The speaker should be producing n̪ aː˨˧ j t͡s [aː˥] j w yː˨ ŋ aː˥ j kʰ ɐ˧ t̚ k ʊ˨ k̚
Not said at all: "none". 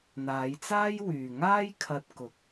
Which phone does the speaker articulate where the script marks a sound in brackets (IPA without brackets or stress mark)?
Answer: aː˥